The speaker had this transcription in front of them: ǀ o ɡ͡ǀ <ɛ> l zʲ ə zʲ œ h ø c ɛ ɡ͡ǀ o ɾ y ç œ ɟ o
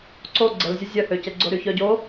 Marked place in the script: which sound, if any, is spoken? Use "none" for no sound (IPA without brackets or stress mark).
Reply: ə